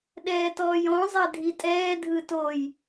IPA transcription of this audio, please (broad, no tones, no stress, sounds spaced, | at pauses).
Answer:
ɗ ɛː t ɔː j ɔ̃ zˤ ɛ dʱ i tʼ ɛː dʱ ɯ t o j